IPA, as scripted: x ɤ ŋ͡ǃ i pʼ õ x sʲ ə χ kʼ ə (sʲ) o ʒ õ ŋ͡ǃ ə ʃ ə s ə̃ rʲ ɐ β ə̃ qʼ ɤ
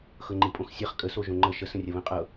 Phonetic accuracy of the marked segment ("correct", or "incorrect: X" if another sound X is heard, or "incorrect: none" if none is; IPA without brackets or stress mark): incorrect: s